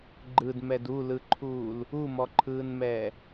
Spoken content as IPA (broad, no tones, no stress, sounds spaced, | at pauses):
ɡ͡ǃ ɯ d m ɛ d u l ɯ ǃʰ uː l | u m ɔ ǃʰ ɯː n m ɛː